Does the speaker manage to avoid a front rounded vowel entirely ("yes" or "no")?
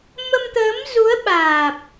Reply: yes